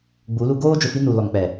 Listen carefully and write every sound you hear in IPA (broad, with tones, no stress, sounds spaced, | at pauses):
ɡ͡b u˨˦ l u˦ ɡ oː˦ d͡ʒ ʊ˨ f i˦ n u˨ l ɔ˨ ŋ k͡p ɛ˨